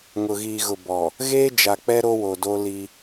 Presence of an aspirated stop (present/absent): absent